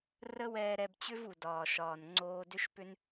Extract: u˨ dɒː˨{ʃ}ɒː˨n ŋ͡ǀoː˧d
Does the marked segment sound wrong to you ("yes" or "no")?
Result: no